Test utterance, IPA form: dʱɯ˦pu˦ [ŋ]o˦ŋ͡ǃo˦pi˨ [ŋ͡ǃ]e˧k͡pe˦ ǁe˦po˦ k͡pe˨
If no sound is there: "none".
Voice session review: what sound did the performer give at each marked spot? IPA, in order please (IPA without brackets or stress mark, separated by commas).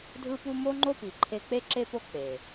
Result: m, ǃʰ